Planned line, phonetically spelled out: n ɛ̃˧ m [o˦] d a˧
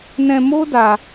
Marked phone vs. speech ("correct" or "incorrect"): correct